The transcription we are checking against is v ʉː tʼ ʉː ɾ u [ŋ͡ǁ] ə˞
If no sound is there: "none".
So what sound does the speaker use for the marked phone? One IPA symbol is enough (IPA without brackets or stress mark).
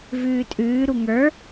ŋ